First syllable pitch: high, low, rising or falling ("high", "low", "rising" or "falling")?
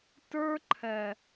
high